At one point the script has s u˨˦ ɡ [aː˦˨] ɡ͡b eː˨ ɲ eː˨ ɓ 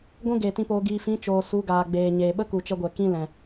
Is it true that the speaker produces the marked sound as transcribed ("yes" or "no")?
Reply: no